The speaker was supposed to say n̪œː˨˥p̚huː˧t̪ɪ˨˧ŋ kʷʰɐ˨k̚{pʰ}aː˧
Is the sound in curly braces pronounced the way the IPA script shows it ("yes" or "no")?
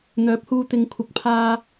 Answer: yes